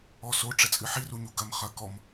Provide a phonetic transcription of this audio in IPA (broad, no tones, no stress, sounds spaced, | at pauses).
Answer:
ɔ s o ʈ͡ʂ ɛ t͡sʼ ɨ ħ i r u ɲ u ɡ ɐ m χ ɐ k ɔ m